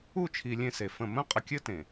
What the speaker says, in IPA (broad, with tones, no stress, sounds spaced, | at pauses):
u˦˨ t͡ʃʰ i˨ lʲ ẽ˦ s e˨ f ə̃˦˨ m ə̃˦ qʼ ə˨ kʲ ɘ˦ t ẽ˨